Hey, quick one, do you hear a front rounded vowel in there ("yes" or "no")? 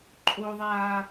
no